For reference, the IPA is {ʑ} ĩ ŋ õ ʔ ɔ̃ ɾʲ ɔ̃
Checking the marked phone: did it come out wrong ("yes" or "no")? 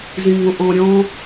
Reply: yes